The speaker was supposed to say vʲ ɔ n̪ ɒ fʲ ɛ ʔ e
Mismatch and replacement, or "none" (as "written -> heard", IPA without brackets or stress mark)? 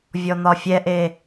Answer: none